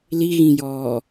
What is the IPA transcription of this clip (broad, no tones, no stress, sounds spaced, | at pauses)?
l i ɣ ĩ j ɔː